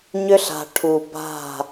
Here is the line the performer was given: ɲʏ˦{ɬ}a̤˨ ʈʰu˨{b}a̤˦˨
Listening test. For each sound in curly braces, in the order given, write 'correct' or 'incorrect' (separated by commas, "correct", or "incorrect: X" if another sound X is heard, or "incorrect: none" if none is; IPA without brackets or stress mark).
correct, correct